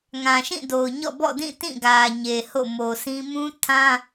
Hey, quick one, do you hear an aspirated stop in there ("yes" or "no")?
yes